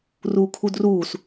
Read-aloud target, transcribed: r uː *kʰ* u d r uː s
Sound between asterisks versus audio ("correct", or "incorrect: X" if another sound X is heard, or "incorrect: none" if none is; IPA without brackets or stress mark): correct